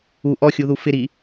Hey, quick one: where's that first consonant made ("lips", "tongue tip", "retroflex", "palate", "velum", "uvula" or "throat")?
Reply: throat